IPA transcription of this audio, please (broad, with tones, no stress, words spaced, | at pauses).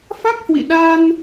fa˦˥k̚hwḭ˧˨ɗa˧n